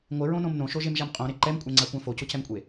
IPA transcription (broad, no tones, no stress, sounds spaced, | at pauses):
ŋʷ ɪ ɹ õ n õ m n õ ʃ o ʒ e m ʒ a m qʼ õ ɾ e ǃ ɛ m kʷʼ ɛ ŋ͡ǀ a kʷ ã f o c ʊ c ɛ m kʷʼ e